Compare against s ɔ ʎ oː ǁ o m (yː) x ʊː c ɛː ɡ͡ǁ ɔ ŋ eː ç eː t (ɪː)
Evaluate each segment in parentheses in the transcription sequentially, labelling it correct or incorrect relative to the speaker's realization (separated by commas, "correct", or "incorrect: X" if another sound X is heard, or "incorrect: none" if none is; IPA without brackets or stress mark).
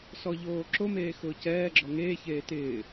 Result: incorrect: eː, correct